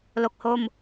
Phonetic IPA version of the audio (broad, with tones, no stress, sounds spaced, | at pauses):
l o˨˩ k̚ h o˧ m